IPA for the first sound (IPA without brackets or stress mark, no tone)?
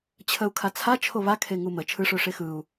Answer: t͡ɕʰ